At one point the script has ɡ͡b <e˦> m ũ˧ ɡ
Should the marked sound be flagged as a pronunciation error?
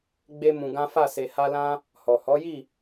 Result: no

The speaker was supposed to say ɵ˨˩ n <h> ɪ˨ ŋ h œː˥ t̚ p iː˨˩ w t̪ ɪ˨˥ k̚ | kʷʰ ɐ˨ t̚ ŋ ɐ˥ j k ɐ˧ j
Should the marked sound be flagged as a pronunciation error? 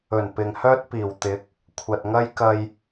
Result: yes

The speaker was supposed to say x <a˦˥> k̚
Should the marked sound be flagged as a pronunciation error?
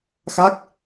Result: no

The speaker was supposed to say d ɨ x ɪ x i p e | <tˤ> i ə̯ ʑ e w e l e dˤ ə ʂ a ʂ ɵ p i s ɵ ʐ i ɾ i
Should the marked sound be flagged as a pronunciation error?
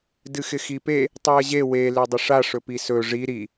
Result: no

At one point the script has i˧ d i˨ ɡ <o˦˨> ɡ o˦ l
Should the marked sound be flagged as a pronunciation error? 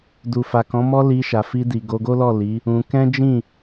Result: yes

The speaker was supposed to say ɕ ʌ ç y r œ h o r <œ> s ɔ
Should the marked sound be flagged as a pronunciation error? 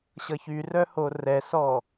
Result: yes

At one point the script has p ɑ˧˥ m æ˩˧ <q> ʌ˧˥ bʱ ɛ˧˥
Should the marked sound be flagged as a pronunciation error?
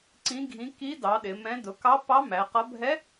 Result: no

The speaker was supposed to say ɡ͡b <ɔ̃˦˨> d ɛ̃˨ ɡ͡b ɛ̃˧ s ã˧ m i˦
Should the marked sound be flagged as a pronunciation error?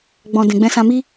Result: yes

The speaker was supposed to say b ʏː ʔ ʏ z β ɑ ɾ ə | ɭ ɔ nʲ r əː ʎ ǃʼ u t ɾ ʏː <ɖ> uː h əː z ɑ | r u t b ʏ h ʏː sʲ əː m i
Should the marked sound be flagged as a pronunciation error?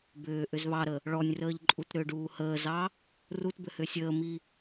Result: no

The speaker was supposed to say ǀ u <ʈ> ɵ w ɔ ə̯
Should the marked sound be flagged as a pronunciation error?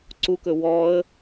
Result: yes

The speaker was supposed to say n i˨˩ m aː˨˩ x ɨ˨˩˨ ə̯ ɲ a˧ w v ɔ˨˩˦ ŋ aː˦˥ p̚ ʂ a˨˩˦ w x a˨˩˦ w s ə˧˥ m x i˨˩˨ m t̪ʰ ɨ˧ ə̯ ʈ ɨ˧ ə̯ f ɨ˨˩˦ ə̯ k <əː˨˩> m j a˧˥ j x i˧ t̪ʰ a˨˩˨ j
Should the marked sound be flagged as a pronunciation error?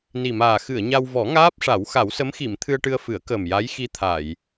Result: no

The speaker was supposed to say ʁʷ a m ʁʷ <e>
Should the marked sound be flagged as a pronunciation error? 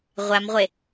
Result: no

